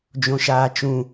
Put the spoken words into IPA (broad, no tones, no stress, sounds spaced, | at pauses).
d͡ʒ õ ʃ aː t͡ʃ ũ